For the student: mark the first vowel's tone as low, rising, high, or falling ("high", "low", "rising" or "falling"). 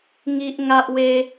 high